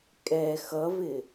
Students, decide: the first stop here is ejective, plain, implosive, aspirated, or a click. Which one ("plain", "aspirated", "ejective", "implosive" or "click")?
ejective